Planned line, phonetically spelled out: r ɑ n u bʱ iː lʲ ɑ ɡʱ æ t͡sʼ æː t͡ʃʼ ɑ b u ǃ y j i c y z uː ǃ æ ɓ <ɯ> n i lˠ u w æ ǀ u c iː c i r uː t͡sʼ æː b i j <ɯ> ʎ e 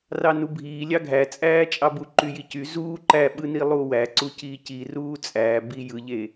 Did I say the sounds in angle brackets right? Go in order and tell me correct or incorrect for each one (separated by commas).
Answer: correct, correct